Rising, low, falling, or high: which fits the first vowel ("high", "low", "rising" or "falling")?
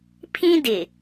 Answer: high